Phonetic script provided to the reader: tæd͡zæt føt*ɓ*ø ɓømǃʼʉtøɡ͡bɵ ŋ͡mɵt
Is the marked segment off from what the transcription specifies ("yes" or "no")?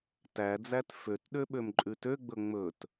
yes